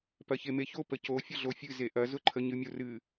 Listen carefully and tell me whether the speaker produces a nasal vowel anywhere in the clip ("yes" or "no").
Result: no